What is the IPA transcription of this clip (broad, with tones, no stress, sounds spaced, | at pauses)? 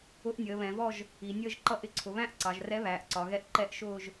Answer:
ʊ˧˥ ʔ nʲ əː˩˧ β ɛ̃˩˧ v ɔ˥˧ ʒ | i˩˧ nʲ əː˥˧ ʒ ǃ ʌ˥˧ ʔ ɪ˥˧ ǀʰ ʊ˩˧ β æ̃˥˧ ʔ ǀ ɑ˩˧ ʒ r ɛ˧˥ β æː˩˧ ʔ ǀ ɒ˩˧ ɣ ɛ˧˥ ʔ ǃ ɛ˥˧ ʔ ʃ ʊː˥˧ ʒ